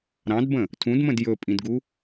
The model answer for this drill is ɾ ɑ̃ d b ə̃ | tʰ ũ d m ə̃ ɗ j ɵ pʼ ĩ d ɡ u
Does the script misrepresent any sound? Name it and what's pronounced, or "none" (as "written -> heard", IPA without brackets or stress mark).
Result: ɗ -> d